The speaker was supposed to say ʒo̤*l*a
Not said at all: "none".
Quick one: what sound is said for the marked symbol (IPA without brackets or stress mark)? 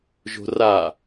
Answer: r